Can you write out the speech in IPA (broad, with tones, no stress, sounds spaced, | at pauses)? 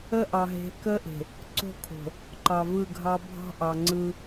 ə˦ ʔ ɑ˨ ɦ e̤˨˦ k ə˦ ʔ e̤˨ | ǀ o̤˦˨ kʰ o̤˨ | ǃ ɑ˨ v ɯ˦˨ ɡʱ ɑ˦ bʱ ɑ̤˦ ʔ ɑ˨ ŋ͡ǀ ɯ˦